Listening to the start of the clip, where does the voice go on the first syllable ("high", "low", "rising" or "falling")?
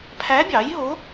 rising